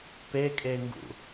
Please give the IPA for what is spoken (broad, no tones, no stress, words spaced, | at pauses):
pekʼeŋɡṵ